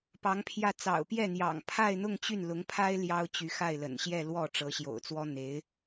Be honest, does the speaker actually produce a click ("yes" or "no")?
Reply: no